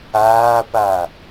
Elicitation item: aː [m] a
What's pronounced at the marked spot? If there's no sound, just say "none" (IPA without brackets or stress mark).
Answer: p